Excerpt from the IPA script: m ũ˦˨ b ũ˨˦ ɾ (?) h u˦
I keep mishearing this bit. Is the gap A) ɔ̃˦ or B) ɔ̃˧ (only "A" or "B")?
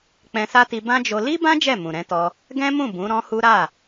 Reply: A